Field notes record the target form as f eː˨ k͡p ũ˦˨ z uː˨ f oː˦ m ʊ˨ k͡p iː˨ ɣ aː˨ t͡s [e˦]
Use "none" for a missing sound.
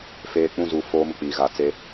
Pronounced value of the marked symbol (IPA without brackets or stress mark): e˦